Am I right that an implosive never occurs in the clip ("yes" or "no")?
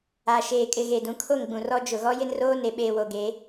no